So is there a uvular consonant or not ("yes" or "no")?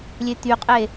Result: yes